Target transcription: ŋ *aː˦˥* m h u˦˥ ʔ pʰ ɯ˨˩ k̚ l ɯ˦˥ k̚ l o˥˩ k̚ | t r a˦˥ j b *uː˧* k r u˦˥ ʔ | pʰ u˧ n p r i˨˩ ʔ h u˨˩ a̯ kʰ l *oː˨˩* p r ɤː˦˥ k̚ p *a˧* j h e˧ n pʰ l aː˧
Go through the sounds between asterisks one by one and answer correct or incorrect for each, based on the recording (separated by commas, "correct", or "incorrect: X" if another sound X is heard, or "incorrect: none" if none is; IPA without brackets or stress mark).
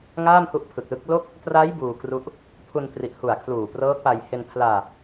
incorrect: aː˥˩, correct, incorrect: uː˨˩, correct